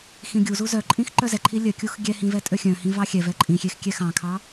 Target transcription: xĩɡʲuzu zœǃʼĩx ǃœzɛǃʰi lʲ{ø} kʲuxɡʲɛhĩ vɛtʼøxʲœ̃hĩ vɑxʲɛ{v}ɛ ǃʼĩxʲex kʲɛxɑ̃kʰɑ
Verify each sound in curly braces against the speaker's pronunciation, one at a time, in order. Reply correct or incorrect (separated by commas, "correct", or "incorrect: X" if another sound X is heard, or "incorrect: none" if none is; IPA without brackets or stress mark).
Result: incorrect: œ, correct